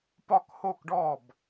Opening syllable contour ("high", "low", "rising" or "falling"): falling